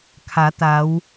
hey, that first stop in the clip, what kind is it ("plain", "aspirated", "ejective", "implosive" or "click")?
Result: aspirated